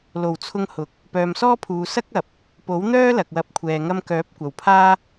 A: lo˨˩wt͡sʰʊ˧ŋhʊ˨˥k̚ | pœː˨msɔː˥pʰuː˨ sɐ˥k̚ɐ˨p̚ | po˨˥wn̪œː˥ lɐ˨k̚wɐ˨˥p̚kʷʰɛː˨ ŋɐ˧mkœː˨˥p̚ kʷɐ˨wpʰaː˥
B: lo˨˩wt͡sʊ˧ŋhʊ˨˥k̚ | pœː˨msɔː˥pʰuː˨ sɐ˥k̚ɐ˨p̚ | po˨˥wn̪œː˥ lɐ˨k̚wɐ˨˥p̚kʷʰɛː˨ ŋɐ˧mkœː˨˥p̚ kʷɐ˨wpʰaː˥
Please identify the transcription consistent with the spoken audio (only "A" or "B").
A